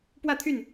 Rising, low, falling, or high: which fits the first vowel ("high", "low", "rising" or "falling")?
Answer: falling